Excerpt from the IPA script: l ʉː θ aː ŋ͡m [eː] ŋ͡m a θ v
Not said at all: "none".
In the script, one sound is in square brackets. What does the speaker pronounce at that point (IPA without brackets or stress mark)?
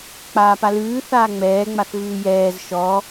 ɛː